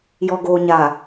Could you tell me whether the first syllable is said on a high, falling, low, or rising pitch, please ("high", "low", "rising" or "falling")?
low